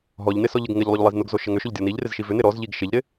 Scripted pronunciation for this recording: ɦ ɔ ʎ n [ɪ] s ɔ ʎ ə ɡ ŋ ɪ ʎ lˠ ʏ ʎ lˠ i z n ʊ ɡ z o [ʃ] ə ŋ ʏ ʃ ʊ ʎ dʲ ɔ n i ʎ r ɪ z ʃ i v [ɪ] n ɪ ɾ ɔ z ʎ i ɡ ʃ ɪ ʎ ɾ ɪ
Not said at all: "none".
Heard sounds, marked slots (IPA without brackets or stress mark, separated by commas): ɪ, ʃ, ʏ